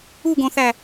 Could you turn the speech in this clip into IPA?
uɡõθæ

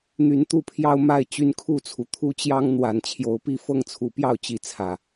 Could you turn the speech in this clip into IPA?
n̪y˨˦nt̪u˥˨pʰjɑ˦ʊ̯ ma˥˨ɪ̯ t͡ɕy˦nkʰu˥˨t͡sʰu˩ t̪ʰu˦t͡ɕjɑ˦ŋ n̪wa˨˩n t͡ɕʰjo˨˦ʊ̯pi˥˨ fɤ˥˨ŋt͡sʰu˨˦pjɑ˥˨ʊ̯ t͡ɕi˥˨t͡sʰä˨˩

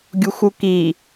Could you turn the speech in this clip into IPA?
ɡʲuxʷuki

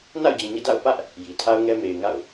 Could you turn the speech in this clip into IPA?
na̰˦˨ʊ̯d͡ʑĩ˨ɲɛ̰˦˨ da̰˦˨ʊ̯pä˦ʔ | ji˨ tʰa˦ʊ̯ŋɛ˦ me˨ɪ̯ŋa̰˦˨ʊ̯

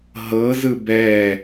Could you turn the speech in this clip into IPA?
ɦɤzɯ bɛ

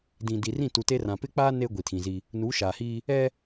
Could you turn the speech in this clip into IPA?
dĩ˨di˨rĩ˦˨ tu˨te˦rã˨ pɪ˦k͡paː˦ ne˦ ɡʷi˨tʰĩ˨zi˦ | nu˨˦ʃaː˨hiː˦ | ɛ˦

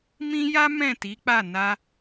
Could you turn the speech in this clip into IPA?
mĩ˦ja˦ mɛ̃˦˨ti˨˦k͡pa˦˨na˧

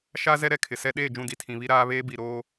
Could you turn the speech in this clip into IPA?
ʃa˦ zɛ˦ɾɛ˨ kʰɪ˨sɛ˦ ɗeː˦˨d͡ʒũ˦˨di˨ tʰĩ˨βi˦ɾaː˦βeː˦ bi˨ɾoː˦

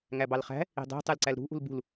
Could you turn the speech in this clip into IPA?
ŋæbɑlχæ̤ | i̤dˤi̤ tˤɯlǀælɾṳ ʔṳlbṳl

